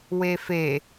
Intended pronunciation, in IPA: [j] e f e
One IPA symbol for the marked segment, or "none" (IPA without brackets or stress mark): w